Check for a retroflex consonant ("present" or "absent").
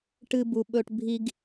present